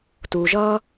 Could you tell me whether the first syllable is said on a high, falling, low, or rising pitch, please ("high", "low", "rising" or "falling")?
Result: low